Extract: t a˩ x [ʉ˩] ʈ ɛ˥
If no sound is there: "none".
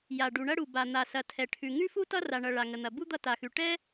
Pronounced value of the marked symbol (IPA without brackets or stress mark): ʉ˩